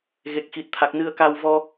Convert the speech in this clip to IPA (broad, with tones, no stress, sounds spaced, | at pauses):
ɣ e˦˥ k̚ x i˦˥ t̚ t̪ʰ a˦˥ k̚ n ɨ˧ ə̯ k a˧ w v ɔ˧